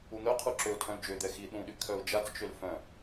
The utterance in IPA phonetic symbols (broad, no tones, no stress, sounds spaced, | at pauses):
u n̪ œ qʰ u ǁ ø ʊ̯ tʰ œ̃ l d͡ʒ ø d̪ ɛ x i ɗ ũ ɗ y kʰ œ ʊ̯ d͡ʒ a t͡s t͡ʃ ø l f œ̃